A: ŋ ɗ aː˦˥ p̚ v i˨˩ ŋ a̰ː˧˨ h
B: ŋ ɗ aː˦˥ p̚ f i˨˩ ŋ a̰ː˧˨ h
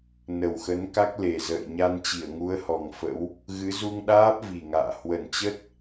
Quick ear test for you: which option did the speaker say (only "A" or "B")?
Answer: A